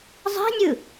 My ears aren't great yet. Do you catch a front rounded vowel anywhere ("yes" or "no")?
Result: no